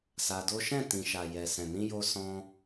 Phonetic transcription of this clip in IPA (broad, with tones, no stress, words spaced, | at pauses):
sa˧do˦ ʃɛ̃˦˨tĩ˨ʃa˨ jɛ˨sɛ̃˨nĩ˧ jo˧sɔ̃˧